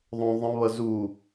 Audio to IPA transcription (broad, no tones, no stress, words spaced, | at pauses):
ðˤõ ðˤə̃βʌ zu